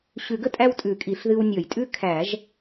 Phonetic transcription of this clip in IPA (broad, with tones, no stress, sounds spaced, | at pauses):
ɕ ʉ˨˩˦ ɡ ə˦ tʼ æ˦ w tʼ ʉ˨˩˦ kʼ i˨˩˦ ɬ ð ɨ˦ w nʲ ɔ˨˩˦ j tʼ ʉ˦ kʰ æ˨˩˦ ʒ